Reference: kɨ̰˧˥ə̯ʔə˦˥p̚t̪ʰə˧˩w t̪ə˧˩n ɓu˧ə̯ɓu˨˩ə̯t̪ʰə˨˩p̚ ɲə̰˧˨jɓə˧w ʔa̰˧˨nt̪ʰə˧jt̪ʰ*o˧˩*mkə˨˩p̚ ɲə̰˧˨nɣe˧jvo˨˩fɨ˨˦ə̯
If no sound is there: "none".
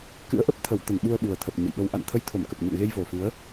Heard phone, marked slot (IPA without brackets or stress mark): o˧˩